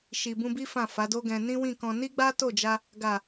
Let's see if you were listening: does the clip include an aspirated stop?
no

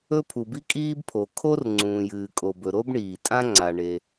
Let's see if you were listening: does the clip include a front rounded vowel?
no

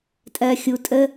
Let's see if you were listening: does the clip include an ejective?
yes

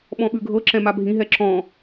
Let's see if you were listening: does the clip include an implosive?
yes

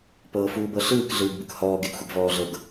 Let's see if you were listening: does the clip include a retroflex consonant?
no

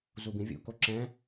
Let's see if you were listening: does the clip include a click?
yes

